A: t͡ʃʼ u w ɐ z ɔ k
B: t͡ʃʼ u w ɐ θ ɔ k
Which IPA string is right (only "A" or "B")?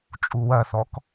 B